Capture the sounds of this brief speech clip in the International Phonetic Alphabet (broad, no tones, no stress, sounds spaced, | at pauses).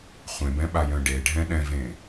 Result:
χʷ ẽ b ɛ̃ ɓ a j œ̃ ɖ e ɖʱ ɛ̃ ɗ ɛ̃ v ẽ